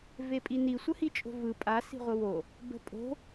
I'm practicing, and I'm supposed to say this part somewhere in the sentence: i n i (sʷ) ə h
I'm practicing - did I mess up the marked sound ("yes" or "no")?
no